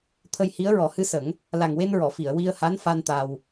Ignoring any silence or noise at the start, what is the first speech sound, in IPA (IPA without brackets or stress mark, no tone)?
t̪ʰ